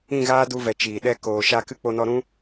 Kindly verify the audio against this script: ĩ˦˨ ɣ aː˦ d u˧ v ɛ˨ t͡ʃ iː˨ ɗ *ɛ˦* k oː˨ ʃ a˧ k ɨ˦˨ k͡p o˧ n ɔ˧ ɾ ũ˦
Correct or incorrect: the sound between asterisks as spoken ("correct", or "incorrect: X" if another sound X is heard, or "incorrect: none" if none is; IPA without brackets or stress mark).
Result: correct